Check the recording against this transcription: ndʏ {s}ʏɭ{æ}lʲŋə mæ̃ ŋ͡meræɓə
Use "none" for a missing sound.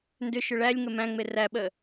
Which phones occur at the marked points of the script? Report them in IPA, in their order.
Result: ʃ, æ

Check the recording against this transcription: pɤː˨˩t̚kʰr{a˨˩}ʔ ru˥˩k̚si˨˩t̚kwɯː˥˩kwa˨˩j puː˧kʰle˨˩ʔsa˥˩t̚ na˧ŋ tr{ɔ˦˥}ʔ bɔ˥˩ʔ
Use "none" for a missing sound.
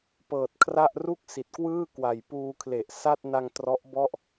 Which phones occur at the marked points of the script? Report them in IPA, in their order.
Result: a˥˩, ɔ˦˥

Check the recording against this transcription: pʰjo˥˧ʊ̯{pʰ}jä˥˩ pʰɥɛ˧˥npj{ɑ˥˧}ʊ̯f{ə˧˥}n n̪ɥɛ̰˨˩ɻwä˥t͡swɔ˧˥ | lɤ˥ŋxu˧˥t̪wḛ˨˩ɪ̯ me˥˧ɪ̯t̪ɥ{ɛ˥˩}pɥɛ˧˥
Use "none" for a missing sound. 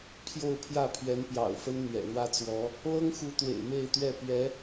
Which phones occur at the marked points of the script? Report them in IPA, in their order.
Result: pʰ, ɑ̰˨˩, ə˥, ɛ˥˩

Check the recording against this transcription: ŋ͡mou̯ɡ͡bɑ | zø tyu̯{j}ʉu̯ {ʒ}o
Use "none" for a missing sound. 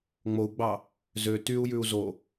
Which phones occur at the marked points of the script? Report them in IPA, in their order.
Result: j, z

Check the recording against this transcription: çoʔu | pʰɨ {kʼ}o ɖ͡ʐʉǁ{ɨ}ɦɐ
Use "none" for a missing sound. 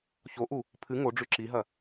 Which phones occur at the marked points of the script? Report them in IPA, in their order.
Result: ŋ, i

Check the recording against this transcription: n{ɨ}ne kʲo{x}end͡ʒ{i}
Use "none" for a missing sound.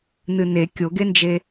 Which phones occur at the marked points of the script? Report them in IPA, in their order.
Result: ɨ, ɡ, e

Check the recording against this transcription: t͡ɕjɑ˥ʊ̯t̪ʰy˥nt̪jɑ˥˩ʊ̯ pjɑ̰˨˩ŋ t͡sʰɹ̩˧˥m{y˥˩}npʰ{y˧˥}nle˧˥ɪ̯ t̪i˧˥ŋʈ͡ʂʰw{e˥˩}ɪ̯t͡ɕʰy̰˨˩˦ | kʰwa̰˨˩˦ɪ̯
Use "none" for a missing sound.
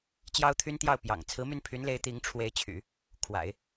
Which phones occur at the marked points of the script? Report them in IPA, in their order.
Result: y˥˩, y˧˥, e˧˥

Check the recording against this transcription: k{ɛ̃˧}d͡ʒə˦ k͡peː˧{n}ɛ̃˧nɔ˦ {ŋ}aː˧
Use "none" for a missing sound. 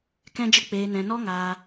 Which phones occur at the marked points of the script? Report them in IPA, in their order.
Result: ɛ̃˦, n, ŋ

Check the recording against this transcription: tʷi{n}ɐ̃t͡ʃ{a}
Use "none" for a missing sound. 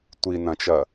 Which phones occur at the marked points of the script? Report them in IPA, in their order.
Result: n, ɐ

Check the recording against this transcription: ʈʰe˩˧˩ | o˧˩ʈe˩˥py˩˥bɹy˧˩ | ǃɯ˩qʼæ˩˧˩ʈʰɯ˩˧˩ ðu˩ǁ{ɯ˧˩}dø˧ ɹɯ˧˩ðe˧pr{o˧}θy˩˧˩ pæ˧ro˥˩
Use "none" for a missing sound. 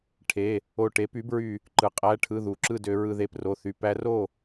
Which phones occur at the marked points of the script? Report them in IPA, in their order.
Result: ɯ˥˩, o˩˧˩

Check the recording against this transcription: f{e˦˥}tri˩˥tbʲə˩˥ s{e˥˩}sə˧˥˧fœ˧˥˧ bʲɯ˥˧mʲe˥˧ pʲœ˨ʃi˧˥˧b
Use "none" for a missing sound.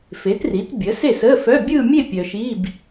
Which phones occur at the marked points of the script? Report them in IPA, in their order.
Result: e˩˥, e˥˩

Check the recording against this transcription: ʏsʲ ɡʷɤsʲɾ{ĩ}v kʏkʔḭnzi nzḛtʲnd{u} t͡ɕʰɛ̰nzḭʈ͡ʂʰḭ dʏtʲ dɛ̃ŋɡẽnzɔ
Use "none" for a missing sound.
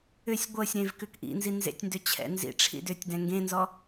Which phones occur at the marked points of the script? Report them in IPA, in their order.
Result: ẽ, ʏ

